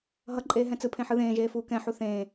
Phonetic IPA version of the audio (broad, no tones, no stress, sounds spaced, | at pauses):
ɦ ʌ ǃʼ eː ɦ ɛ̃ t͡s ɯ pʰ ẽ ħ ɯ ð ẽː ʒ eː f uː k ɛ̃ ħ u θ ẽː